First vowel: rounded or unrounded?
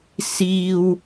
unrounded